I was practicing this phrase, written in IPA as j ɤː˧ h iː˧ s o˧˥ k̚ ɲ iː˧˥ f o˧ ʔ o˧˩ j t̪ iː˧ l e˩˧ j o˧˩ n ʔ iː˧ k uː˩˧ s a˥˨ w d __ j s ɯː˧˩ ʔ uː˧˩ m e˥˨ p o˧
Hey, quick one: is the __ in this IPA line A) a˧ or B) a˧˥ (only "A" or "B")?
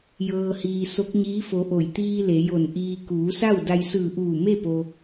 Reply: A